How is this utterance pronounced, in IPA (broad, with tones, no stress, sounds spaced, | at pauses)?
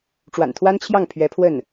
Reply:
ʈ͡ʂ w a̰˨˩ n t̪ʰ w a˥ n t͡ɕʰ j ɑ˥˩ ŋ pʰ ɥ ɛ˧˥ pʰ w ə˥˩ n